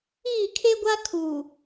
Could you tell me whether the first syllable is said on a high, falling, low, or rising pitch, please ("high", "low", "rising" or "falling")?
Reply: falling